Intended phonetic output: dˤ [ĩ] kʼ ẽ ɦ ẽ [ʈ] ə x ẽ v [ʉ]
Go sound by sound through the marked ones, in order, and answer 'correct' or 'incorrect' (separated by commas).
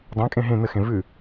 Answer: incorrect, incorrect, correct